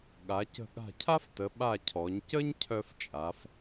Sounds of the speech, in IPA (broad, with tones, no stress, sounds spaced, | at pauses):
ɠ a˩˧ c ə̤˧˩ ɠ a̤˧˩ cʰ a˥ f t ə˩˧ ɓ a˧˩ cʰ ɔ˩˧ ɲ c ə˥ ɲ cʰ œ˧ f t͡ʃʼ a˩˧ f